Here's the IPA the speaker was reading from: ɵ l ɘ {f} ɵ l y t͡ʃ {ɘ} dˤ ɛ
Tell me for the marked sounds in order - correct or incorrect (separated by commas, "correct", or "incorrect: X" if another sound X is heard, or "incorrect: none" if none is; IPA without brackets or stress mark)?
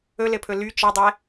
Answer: incorrect: pʰ, correct